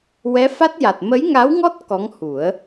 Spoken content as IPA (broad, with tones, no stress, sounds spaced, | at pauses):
w ɛ˧˥ f a˦˥ t̚ j a˨˩ t̚ m ə˧˥ j ŋ a˧˥ w ŋ ɔ˦˥ t̚ k ɔ˧˥ ŋ h u˨˩˦ ə̯